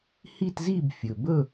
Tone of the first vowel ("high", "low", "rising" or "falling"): falling